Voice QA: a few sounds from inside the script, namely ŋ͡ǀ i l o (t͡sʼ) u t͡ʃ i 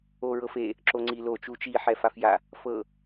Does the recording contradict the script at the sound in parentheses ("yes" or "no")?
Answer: yes